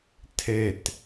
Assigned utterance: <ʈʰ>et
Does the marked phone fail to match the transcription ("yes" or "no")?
yes